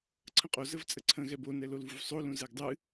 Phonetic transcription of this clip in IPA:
ǀʰə̃qʼo zəvt͡sʼəǀʰə̃ ɣɛbo nɛlolvuvsˤo lũzɛɡdˤɨ

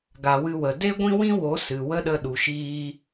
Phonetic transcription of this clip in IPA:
ɡa˨wɨ˧wə˨ de˦ɡʷĩ˦wĩ˦wo˨˦ sɨ˨wə˦ɗə˧ ɗu˨ʃiː˧

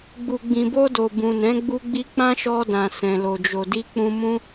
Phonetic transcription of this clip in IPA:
ɡ͡bu˨ɡ͡bĩ˨bo˧do˨ bũ˨nɛ̃˨˦ ɡ͡bu˧ɡ͡bi˧ k͡pã˦ʃɔ˧dã˨ sɛ̃˨lo˨d͡ʒo˨ di˧ k͡pũ˧mũ˦

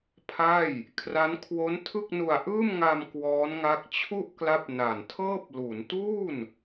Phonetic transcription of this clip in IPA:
pʰa˥˩j | kʰra˦˥nkʰwo˦˥ntʰɯ˥˩k̚nu˧a̯ ʔɯː˥˩mŋa˧m kwɔː˦˥nŋa˦˥k̚ t͡ɕʰu˥˩ʔkla˦˥p̚ na˨˩ntʰɤː˥˩p̚ lu˩˦n tuː˥˩n

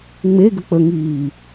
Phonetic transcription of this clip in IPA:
ŋ͡me ɡək͡pə ŋiː

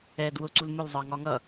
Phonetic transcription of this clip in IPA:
ɛ dwʊ ǀulmʊl zˤɑŋɒŋʌ

